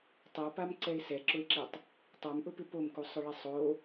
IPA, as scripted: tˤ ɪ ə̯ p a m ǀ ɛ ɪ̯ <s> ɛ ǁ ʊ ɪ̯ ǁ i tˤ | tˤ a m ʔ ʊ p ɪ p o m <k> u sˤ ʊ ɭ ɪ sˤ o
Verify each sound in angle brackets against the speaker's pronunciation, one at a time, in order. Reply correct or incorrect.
correct, correct

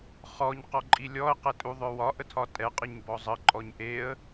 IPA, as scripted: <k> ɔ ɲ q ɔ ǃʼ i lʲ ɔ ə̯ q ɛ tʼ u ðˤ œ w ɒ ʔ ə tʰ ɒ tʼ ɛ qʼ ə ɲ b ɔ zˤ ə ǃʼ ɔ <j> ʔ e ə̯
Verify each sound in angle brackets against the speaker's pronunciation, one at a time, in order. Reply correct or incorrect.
incorrect: χ, incorrect: ɲ

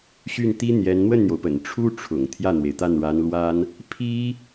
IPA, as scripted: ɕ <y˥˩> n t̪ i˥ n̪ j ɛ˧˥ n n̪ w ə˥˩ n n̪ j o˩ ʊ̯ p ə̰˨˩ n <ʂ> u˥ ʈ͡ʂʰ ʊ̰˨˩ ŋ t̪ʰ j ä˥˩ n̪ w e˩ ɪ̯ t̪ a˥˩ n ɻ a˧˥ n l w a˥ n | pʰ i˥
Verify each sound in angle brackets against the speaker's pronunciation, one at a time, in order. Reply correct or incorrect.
correct, incorrect: ʈ͡ʂʰ

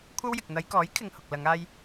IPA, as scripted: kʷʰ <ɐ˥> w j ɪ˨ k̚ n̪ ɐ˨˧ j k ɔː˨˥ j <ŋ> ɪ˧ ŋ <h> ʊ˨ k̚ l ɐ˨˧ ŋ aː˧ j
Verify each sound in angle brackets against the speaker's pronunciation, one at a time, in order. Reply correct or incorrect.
correct, incorrect: kʰ, correct

